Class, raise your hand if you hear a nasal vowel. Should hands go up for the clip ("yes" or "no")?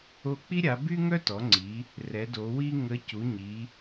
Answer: no